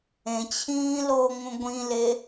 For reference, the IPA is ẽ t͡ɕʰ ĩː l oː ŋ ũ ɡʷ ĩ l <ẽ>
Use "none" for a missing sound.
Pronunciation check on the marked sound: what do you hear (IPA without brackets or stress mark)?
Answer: e